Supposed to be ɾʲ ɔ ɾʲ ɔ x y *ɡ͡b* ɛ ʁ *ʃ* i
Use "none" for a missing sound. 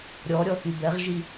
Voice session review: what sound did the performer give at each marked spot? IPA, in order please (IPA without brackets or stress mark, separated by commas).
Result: b, ʒ